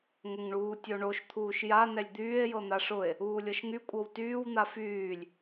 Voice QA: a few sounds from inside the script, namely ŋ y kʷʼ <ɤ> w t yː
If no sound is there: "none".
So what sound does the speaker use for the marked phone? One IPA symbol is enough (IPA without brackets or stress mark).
ɤ